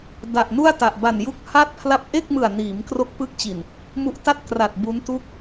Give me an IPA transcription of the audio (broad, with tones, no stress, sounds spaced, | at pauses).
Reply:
d a˨˩ ʔ n u˥˩ a̯ t a˨˩ ʔ b a˨˩ n j u˦˥ k̚ h a˥˩ t̚ pʰ l a˥˩ p̚ ʔ e˥˩ k̚ m ɯ˨˩ a̯ n iː˩˦ m k r o˦˥ k̚ p ɯ˦˥ k̚ t͡ɕ i˨˩ n | m u˦˥ ʔ t a˥˩ t̚ k r a˨˩ t̚ b u˦˥ n t u˥˩ k̚